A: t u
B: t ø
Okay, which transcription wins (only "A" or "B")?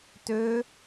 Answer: B